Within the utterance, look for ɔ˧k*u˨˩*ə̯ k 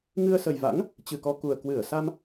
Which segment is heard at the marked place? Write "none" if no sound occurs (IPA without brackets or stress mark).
u˨˩